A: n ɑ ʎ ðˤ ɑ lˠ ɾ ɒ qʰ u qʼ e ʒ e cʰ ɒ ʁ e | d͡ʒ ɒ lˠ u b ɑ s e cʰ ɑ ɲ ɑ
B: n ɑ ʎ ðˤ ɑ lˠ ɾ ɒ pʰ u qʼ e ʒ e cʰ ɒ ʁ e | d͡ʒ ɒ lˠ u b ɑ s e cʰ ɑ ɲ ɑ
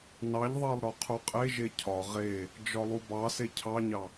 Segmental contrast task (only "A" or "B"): A